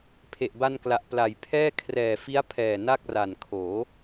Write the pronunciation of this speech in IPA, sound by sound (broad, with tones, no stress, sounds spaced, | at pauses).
pʰ e˨˩ ʔ b a˧ n k l a˨˩ ʔ p l a˨˩ j pʰ ɛː˥˩ kʰ r ɛː˨˩ f i˦˥ a̯ pʰ ɛː˨˩ n a˥˩ k̚ r a˨˩ n kʰ oː˩˦